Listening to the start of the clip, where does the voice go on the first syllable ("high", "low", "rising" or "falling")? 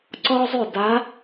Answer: high